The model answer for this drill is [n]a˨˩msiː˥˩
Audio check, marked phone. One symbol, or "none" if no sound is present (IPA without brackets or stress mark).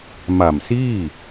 m